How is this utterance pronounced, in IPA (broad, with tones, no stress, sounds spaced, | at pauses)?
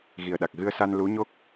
ɣ i˨˩ ə̯ ɗ a˨˩ k̚ ɣ ɨ˧ ə̯ s a˧ n l u˧˥ ɲ o˦˥ k̚